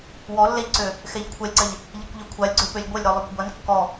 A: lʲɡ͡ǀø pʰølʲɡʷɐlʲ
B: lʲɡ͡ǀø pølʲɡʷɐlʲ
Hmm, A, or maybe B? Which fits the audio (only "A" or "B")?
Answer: B